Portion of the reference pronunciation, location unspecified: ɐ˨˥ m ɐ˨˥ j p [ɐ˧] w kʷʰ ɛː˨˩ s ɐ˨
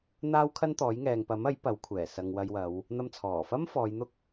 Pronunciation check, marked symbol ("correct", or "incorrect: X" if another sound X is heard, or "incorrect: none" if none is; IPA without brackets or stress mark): incorrect: ɐ˨˥